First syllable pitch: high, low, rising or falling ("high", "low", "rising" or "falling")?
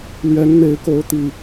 rising